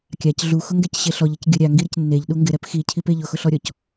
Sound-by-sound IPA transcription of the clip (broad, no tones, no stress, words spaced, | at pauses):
kʲac ɮuxʊŋɡɛcɕe ɬɔʎɛc ɡʲʊ ɾʲaŋɡiɾɪc nːeʎɗu ŋɡɪɾɛp xicʰipe ʎʊxʊɬɔɾʲɔc